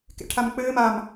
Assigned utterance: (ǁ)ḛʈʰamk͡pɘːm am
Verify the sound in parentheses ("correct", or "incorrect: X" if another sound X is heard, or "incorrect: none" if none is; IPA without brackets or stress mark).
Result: incorrect: k